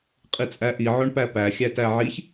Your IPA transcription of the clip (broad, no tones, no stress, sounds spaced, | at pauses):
qʼ i t͡sʼ æ ʔ i ʕ o ɳ p æ p æ xʲ æ t æ ʕ i ç